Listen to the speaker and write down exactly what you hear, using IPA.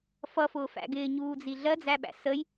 f ʌ f ʊː f æ̰ ɡ ɪː ɲ uː d͡z i ɮ ɜ d͡z æ ɓ æ̰ s ə j

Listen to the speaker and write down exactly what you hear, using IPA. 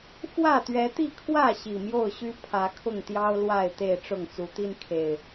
f w ä˥˨ t̪ ɥ ɛ˨˦ t̪ i˥˨ kʰ w ä˥˨ ɕ i˨˩ m j o˥˨ ʊ̯ ɕ y˦ pʰ ä˨˦ kʰ ʊ˥˨ ŋ t̪ j ɑ˦ ʊ̯ l w a˥˨ ɪ̯ t̪ e˥˨ ɪ̯ ʈ͡ʂ ʊ˥˨ ŋ t͡s u˨˦ t̪ i˦ n kʰ e˨˩ ɪ̯

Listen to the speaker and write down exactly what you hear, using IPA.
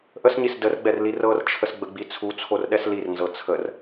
ʔ ə s ɲ i s d ə r ɡ͡b ɛ r l i r ɤ r t͡ʃʰ ə s ɡ͡b ə ɡ͡b i t͡sʰ u t͡sʰ o r ɗ ɛ s l i r n z ɤ t͡sʰ ə r

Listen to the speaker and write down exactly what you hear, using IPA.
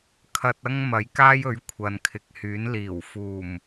kʰ ɐ˧ t̚ ɐ˥ ŋ m ɐ˨˥ j k aː˥ j ɵ˨˥ ɥ kʷʰ ɐ˨ n kʰ ɪ˨ k̚ h yː˨˥ n l iː˨˩ w f uː˨˩ m

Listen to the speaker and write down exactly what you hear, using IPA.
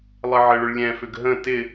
lˠ ɘ ʕ ɘ ɭ ʏ ɭ lʲ ɛ̃ f ʏ ɡ ɦ ə̃ t ɪ

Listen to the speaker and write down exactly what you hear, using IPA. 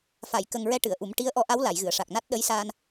f a˨˩˨ j k ə˨˩ ŋ ɹ ɛ˧ ʈ ɨ˨˩˨ ə̯ ʔ u˨˩˦ m ʈ i˧˥ ə̯ ʔ ɔ˧˥ ʔ a˧˥ w l a˨˩˨ j ɣ ɨ˨˩˨ ə̯ ʂ a˨˩ k̚ n a˦˥ t̚ ɗ ə˧˥ j s aː˧ n

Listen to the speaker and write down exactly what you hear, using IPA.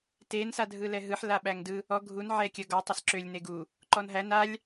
t e n s a dʱ ɯ l ɛ ɦ ɯ ħ l a ɓ æ ŋ d ɯ | ɔ ɡʱ u n ʕ ɛ kʲ ə ɡ ɔ tˤ ə s ǁ ø lʲ n e ɡ u | ǃ ɔ n ɦ æ n a lʲ

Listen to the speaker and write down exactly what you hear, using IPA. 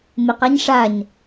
m ɪ q a ɲ ʂ a ɲ

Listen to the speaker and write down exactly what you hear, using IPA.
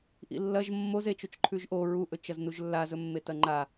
ʔ ḭ lː ɐ ʒ mː o z e t͡ʃ o t͡ʃ ǃʰ ʉ ʒ ʔ o ɹ u ʔ ɵ t͡ʃ ɐ z n u ʒ lː a z ɵ mː e t ɐ ŋ͡ǃ a

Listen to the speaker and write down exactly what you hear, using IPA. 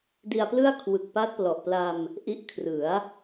d i˧ a̯ p l ɯ˥˩ a̯ kʰ w ɯ˨˩ k̚ p a˦˥ t̚ p l ɔ˨˩ ʔ p l a˧ m | ʔ i˦˥ ʔ kʰ r ɯ˩˦ a̯

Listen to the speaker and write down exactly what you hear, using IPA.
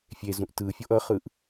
fʲ e z ũ ʔ t ɯ fʲ o ʔ ʌ χ ɯ ʔ

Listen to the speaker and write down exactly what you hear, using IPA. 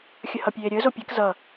xʲ ə h ʌ pʲ eː ɾʲ əː z o pʲ e k z ʌ

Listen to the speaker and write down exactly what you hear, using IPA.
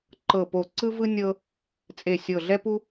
ǃ ɤ˧˩ p o˧˩ ǀ ɯ˥ v ɯ˥ nʲ ɤ˥ | t͡sʼ e˧˩ sʲ ɤ˧˩ ɮ ɛ˥ p u˥

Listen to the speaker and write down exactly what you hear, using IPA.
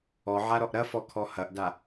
ɔ ʕ a ɾ ɔ ʔ ɾ ɐ f ɔ kʰ ɔ h ɐ ʔ d a

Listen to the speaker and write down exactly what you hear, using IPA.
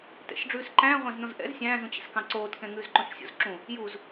t ɛ̰ ʃ ɖ͡ʐ ʉː s ǃ æ̃ː ʁʷ æ̃ z n õ z ʔ ɛ̰ z sʲ æ̃ː z ũ t͡ɕ ɛ̰ s k ɑ̃ ǀ oː t k ɛ̃ ŋ ʉː z ǃ õ ʃ sʲ o̰ z ǁ ũ | j u z

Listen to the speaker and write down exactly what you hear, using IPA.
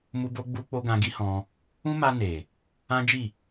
m u˧ b o˧ ɡ͡b u˧ k͡p o˧ ɡ ã˧ ɡ i˦ h ɔ̃˧ | ũ˦ m a˧ n e˨ | ã˦ d͡ʒ i˦˨

